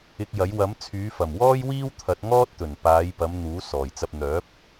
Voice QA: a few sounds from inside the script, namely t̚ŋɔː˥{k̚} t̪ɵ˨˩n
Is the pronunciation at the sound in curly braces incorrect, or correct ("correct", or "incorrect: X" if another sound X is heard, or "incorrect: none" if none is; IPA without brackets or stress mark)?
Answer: incorrect: t̚